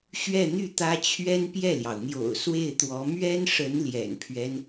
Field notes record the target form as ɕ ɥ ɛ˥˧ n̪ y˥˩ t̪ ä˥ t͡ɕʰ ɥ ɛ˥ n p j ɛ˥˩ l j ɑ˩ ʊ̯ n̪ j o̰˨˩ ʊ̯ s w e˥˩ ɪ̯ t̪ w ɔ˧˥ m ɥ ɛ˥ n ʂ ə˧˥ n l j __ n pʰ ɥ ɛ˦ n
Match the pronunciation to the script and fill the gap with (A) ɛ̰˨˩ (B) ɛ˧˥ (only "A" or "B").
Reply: A